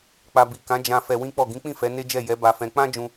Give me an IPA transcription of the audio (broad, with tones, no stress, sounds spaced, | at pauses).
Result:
k͡p a˧ b i˨ k ã˨˦ d͡ʒ ã˧ f ɛ˧ w ĩ˦ k͡p ɔ˦˨ ɡ ĩ˨˦ k͡p ĩ˦˨ f ɛ˨˦ n e˦ d͡ʒ ɛ˦˨ j ɛ˨˦ b a˧ f ɛ̃˧ k͡p ã˦ d͡ʒ ũ˧